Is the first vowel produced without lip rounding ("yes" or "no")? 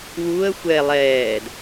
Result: no